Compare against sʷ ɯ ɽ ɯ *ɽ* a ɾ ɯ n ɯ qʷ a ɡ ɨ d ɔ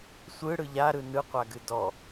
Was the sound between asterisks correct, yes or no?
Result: no